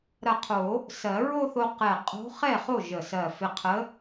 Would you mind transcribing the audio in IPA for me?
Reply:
ɾ ɐ˧˩ qʰ o˨˩˦ | s ɜ˨˩˦ ɹ o˥˧ θ o˧ q ɛ˧˩ qʼ o̤˧˥ χ ɛ˥˩ χ o˥˩ ʒ ə˧˩ s ɜ˧˩ f ɪ˧ qʰ ə˧˥

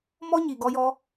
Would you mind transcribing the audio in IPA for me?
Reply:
m ɔ˦ ɲ i˨ ɡ ɔ˧ j ɔ˧

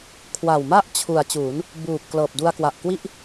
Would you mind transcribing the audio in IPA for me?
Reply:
kʰ w a˨˩ w m a˥˩ ʔ t͡ɕʰ u˩˦ a̯ t͡ɕ uː˩˦ n | b uː˨˩ p̚ k l ɤː˨˩ p̚ d u˧ a̯ k w a˨˩ ʔ k w i˥˩ ʔ

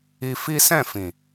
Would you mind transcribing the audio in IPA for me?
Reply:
i˧ f i˦ s ɛ̃˦˨ f ĩ˨

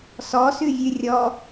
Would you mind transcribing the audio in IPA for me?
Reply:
s ɔ s ʉ vʲ ʉ rʲ ɔ

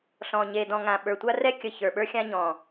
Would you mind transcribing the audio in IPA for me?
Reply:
ɬ ɔ̃˨ ɲ e˨ d ɔ̃˨ ŋ ã˨ ɓ ə˞˨ tʷ a˦ r ɛ˦ kʲ ə˨ ç ə˞˨ ɓ ə˞˦ xʲ ã˦ ɲ ɔ̃˨

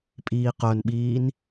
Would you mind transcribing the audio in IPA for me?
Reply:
pʼ iː q œ n ɓ iː n

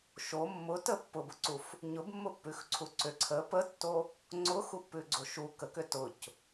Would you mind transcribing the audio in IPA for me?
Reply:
ʃ o mː ʊ t ə pː ʊ b ʊ ǀ u f | ɲ ʊ b mː ʊ pː ʉ x ǀʰ u ǀ ʏ ǀʰ ə p ə tː o | ŋ͡ǀ ʊ x u pː ʉ ɡ͡ǀ o ʃ u k ə k ʏ t ʊ c

